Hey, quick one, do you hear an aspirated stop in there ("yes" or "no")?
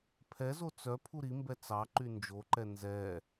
yes